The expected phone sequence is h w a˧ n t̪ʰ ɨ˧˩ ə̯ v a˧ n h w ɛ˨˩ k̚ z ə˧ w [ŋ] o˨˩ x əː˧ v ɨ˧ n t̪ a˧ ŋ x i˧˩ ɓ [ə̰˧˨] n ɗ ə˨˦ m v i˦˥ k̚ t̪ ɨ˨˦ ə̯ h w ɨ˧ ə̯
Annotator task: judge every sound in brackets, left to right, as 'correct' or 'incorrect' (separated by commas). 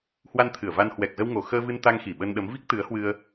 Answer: correct, incorrect